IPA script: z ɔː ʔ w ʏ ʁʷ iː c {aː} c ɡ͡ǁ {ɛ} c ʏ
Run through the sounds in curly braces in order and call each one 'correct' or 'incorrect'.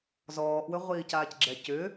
correct, correct

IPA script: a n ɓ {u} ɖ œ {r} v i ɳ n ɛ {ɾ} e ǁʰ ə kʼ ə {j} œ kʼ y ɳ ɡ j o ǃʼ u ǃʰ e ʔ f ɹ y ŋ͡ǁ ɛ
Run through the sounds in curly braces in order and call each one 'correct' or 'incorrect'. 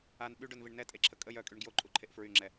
incorrect, incorrect, incorrect, correct

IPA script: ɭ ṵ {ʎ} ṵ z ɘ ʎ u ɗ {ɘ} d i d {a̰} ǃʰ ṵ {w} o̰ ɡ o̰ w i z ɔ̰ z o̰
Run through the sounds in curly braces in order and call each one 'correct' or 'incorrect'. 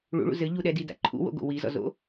incorrect, incorrect, correct, correct

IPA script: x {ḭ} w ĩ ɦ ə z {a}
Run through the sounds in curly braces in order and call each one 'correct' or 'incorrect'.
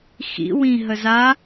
correct, correct

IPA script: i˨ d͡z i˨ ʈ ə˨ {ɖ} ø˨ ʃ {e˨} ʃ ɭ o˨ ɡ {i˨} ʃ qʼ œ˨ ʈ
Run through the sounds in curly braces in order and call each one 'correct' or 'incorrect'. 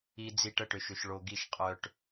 incorrect, incorrect, correct

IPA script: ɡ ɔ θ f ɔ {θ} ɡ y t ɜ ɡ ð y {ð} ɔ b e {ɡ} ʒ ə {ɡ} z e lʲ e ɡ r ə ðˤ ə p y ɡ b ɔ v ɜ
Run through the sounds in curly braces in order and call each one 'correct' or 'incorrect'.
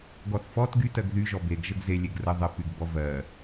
incorrect, incorrect, correct, correct

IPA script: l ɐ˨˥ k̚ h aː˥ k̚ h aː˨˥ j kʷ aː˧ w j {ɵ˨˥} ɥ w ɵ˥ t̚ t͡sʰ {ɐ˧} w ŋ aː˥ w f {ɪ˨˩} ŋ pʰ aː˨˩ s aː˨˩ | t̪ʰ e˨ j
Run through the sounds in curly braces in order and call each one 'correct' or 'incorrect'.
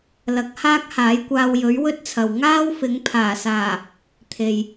correct, incorrect, incorrect

